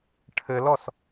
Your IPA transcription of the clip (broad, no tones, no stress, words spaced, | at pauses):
ʈʰɘlɔs